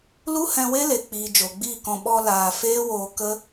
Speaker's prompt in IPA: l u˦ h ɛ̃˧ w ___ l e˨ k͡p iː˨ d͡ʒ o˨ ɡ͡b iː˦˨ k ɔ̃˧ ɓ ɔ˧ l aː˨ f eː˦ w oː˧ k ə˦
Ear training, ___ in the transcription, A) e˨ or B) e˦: B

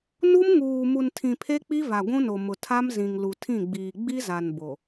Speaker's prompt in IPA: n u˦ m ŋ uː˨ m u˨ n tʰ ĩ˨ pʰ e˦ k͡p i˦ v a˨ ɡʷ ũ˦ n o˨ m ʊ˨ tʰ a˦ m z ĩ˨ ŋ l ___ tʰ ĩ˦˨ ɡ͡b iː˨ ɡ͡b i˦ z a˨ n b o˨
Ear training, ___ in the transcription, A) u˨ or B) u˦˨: A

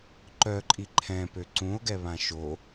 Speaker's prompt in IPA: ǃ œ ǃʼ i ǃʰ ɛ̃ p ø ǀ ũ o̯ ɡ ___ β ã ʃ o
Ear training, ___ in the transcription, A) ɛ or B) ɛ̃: A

